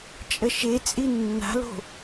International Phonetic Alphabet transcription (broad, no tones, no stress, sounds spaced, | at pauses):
t͡ʃʼ ʌ ʃ e t͡sʼ i nː a̤ l o̤